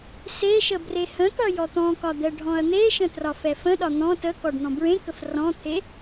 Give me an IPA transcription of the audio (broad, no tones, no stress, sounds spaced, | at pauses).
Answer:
s e ʃ ə b r e h ə̃ t̪ ʌ j ɔ t̪ ɔ̃ k ɒ d̪ ɛ ɖʱ ɔ̃ ɐ̯ n̪ e ʃ ə̃ t r ɒ f ɛ f ə̃ ɗ ɒ n̪ ɔ̃ t ə k ɔ ɖ n̪ ɔ̃ b ɹ ẽ k ə f r ɔ̃ t̪ʰ e